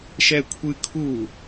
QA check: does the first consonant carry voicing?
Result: no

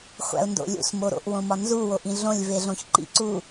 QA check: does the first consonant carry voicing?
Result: no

